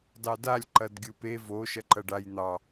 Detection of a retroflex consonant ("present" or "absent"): present